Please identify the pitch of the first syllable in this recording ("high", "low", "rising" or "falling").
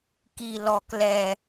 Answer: low